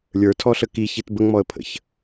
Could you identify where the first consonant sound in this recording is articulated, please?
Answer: alveolar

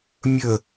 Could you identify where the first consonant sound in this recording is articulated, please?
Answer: labial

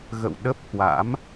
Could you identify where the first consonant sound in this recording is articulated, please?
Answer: velar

